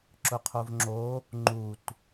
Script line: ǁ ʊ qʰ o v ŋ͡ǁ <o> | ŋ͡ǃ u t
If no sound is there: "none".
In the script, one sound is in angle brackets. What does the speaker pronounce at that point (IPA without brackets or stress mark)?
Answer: o